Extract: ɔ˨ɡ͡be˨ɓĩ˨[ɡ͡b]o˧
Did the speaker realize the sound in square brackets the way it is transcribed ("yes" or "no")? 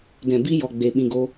no